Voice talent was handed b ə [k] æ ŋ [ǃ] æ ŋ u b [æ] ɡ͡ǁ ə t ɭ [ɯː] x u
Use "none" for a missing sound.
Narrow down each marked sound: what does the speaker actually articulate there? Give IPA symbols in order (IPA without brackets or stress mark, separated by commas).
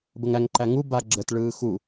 ŋ, ǃ, a, ɯː